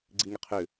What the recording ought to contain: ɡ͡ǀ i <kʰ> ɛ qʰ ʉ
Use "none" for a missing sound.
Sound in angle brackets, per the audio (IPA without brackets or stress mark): ŋ